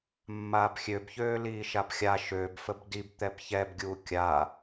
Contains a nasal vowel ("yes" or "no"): no